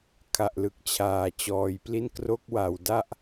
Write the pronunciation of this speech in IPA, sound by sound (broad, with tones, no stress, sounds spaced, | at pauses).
kʰ a˨˩ ʔ l ɯ˨˩ k̚ t͡ɕʰ aː˨˩ t͡ɕ ɔː˨˩ j p l i˥˩ n k r o˦˥ k̚ w a˨˩ w d a˥˩ ʔ